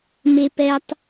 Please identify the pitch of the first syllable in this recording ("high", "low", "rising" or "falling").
high